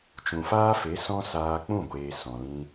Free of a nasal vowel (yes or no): no